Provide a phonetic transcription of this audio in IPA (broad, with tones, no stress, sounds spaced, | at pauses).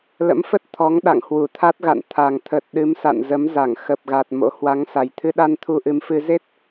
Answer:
l ə̰˧˥ m f ə˦˥ t̚ t̪ʰ ɔ˨˦ ŋ ɗ a̰˧˨ ŋ h w u˧˩ t̪ʰ a˦˥ t̚ ɣ a̰˧˨ n t̪ʰ a˨˩ ŋ t̪ʰ ə˨˩ t̚ ɗ ɨ˨˦ m s a̰˧˨ n z ə˨˦ m z a˧˩ ŋ x ə˨˩ p̚ ɣ a˨˩ t̚ m o̰˧˥ h w a˨˦ ŋ s a˨˩ j t̪ʰ ɨ˧ ɗ a˧ n t̪ʰ u˧ ʔ ɨ˨˦ m f ɨ˧ z e˦˥ t̚